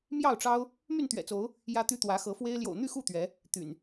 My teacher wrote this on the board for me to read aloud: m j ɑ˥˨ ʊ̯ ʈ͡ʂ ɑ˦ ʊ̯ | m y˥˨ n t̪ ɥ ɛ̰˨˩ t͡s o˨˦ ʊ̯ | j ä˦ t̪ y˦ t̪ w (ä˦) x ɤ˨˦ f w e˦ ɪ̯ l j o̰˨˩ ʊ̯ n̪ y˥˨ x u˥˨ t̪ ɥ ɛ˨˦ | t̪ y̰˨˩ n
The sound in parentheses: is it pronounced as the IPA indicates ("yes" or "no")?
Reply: no